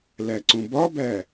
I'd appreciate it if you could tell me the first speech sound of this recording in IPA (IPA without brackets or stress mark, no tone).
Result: l